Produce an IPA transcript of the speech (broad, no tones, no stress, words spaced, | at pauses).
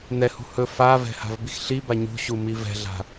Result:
n̪ɛhṳ hɵ favɛ̤ha̤vbix ɬiba ɲṳɕumi vɛ̤ɮa̤